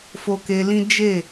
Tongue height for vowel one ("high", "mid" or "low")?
mid